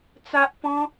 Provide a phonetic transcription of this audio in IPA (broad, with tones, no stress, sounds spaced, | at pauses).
t͡s a˦ ʔ p ɔ̃˦